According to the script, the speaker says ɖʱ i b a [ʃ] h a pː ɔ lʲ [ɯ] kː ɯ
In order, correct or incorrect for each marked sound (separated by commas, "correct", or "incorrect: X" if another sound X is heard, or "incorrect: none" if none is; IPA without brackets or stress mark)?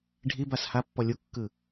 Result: incorrect: s, incorrect: u